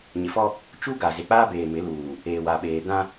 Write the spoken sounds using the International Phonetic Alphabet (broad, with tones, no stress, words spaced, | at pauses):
ɲɪ˨fɔ˦ | t͡ʃu˦ɡa˨ ze˨k͡paː˦beː˨ mɪ˨˦luː˨ | eː˨wa˨ɓeː˨ dã˦